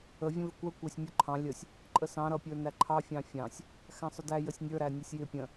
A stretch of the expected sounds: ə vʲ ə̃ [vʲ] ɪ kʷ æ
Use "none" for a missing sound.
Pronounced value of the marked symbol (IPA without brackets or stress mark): v